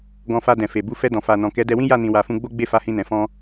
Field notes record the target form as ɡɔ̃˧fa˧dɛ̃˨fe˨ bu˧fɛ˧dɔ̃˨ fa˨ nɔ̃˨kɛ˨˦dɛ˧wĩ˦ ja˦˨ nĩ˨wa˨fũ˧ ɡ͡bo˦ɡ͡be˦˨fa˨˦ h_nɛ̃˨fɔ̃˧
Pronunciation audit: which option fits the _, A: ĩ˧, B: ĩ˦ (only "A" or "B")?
A